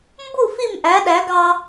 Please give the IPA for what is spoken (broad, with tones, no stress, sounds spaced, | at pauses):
m b u˥˨ f i˥˨ m ʔ æ˨˥ ɗ æ˨˥ ɡ ɑ˦